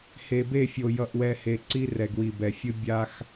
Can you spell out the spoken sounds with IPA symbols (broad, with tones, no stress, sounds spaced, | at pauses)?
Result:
h e˨ b e˦˨ fʲ o˨ j ʌ˨ ʔ w ɛ˨ h e˨ ǀ i˦ r ɛ˨ ɡ w i˨ b ɛ˨ fʲ ɯ˦ bʲ a˦ x